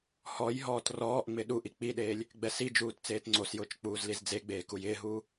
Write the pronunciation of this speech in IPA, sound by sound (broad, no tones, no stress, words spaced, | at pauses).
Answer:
hɔjɦɔːt rɔːʔŋ͡mɪ ɗuʔi k͡piɗeːlʲ | ɡ͡bɛsid͡ʒuːt t͡seːtŋ͡ǀosjʊːt͡ʃ k͡puːzlizd͡zeɡ͡beː kujɪːɦuː